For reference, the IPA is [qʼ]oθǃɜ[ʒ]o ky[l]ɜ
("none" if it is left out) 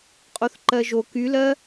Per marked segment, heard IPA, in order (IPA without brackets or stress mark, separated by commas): qʼ, ʒ, l